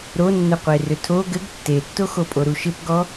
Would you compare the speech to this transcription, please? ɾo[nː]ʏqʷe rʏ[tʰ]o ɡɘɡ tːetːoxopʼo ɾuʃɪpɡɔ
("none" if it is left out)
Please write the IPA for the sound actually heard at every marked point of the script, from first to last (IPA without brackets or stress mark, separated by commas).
nː, tʰ